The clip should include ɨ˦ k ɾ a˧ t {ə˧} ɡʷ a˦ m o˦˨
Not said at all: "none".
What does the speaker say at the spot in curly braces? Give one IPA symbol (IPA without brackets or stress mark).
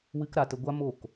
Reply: ə˧